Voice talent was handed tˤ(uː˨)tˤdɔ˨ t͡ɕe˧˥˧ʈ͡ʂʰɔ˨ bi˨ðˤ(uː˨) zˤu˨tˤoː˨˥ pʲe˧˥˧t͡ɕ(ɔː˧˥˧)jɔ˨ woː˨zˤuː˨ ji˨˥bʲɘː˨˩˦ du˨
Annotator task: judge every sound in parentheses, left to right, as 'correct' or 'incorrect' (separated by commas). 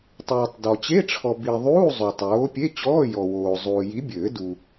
correct, incorrect, correct